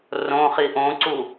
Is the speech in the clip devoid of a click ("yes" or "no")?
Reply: no